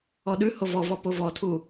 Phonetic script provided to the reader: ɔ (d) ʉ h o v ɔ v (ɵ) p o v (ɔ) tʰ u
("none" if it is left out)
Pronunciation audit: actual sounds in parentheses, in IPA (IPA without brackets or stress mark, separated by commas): ɗ, ɔ, ɔ